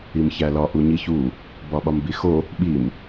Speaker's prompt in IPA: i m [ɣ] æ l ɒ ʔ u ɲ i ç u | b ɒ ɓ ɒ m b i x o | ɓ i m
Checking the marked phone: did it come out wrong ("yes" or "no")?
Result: yes